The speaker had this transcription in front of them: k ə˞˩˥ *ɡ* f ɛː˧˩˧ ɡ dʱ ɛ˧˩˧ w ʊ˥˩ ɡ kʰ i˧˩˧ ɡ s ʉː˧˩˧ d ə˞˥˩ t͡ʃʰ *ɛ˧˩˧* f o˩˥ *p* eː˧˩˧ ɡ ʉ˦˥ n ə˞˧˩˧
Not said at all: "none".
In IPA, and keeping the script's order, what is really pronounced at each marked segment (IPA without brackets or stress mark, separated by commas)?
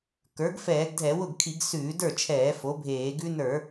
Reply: ɡ, ɛː˧˩˧, bʱ